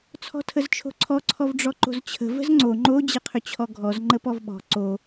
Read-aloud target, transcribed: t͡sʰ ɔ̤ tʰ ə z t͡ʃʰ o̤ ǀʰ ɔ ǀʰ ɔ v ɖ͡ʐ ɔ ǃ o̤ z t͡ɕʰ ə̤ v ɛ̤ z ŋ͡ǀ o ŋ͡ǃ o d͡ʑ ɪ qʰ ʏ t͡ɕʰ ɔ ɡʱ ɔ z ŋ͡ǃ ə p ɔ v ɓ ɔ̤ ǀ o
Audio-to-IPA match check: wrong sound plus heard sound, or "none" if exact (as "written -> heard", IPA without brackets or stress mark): ɛ̤ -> ə̤